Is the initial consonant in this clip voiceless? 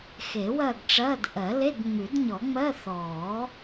yes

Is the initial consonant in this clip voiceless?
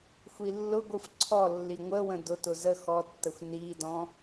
yes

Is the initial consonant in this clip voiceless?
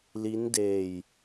no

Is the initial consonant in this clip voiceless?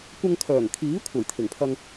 yes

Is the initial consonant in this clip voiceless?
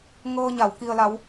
no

